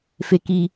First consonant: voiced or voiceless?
voiceless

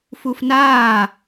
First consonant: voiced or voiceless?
voiceless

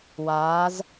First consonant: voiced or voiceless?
voiced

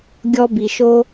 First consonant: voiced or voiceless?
voiced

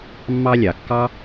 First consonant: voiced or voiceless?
voiced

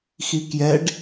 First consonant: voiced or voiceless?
voiceless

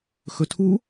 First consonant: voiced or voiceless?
voiceless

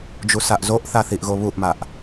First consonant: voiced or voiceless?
voiced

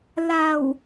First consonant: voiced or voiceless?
voiced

